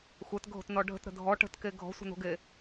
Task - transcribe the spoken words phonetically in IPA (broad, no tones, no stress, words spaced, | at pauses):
xʷɛtɡʱo̤tnɔ ɖʱə̤tɾə̤ dʱɔ ʈə̤tke ɡʱɔ̤sʷə̤no̤ɡe